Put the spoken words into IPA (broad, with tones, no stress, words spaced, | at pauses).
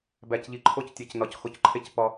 bæ˨cʎi˨ǃʰo˦ctʲe˨c nɒ˨c xo˨cǃʰe˦c pɒ˦